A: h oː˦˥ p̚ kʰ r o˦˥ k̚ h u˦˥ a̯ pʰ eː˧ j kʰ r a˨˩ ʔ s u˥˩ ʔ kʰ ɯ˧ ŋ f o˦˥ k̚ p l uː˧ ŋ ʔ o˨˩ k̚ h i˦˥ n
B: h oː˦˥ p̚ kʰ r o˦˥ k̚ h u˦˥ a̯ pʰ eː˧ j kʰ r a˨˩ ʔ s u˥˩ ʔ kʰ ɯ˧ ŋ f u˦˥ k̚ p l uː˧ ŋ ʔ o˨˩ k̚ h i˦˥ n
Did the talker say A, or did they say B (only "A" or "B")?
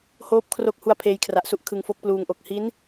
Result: A